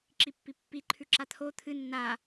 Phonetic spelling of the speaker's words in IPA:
ǁ i pː i pː i ǃʰ ʉ ǁ a t̪ʰ o t̪ʰ ɨ nː a

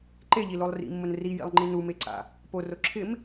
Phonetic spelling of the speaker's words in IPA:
ǃ e ʎ i l o lˠ r ḭ mː ʊ n r i j ḭ lˠ ŋ͡ǃ i n u m e ǀ a̰ | p o r o ǁʰ ɪ m

